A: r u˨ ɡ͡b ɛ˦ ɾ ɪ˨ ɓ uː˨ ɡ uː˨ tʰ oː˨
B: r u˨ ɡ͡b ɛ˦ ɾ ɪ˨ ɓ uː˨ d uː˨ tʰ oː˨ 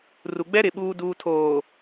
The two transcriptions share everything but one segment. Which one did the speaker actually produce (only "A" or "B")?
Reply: B